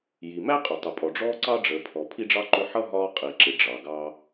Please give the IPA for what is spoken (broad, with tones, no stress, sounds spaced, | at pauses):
j i˩ m æ˥ qʼ ʊ˩ tˤ ʊ˩ pʼ ɔ˩ ɖ͡ʐ ɔː˦ ǀ ɑ˥ ɖ͡ʐ əː˨ pʰ ɔ˨ pʰ i˥ ɖ͡ʐ ɑ˥ ǃ ʊ˦ ħ ʌ˥ ɦ ɒː˦ qʼ i˩ ǁ ɪ˩ ɖ͡ʐ ɑ˩ ɡ ɑ˦